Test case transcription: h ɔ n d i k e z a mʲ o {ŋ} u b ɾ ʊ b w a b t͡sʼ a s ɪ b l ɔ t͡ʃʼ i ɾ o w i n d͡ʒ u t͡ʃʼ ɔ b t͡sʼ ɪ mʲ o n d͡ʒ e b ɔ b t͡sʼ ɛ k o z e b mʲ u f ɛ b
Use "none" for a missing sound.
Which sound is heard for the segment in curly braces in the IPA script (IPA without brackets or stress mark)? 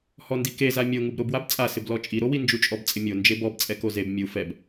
ŋ